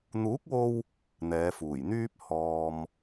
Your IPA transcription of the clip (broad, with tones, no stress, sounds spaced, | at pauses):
n̪ uː˨˥ k̚ w o˧ w | n̪ ɛː˨˧ f uː˨˩ j n̪ yː˥ p̚ h ɔː˨ m